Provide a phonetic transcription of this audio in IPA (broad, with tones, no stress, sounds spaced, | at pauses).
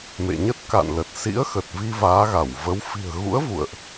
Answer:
m ḛ˧˨ ɲ ə˦˥ t̚ k a̰˧˨ n l ə˨˩ t̚ s ḭ˧˥ ə̯ x ə˨˩ t̚ v i˧ v aː˨˦ ɣ a˧˩ w v ə˨˦ w f i̤˨˩ ə̯ ɣ ṵ˧˥ ə̯ v ṵ˧˨ ə̯ ʔ